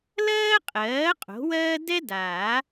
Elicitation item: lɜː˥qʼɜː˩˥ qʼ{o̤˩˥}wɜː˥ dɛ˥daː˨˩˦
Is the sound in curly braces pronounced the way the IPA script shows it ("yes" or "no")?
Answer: yes